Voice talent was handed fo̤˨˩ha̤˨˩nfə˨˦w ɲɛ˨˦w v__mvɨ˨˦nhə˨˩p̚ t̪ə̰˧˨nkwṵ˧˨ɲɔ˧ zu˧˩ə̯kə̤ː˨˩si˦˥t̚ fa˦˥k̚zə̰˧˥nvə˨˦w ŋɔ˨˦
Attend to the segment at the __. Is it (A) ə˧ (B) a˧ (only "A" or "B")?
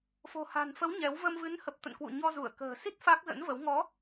A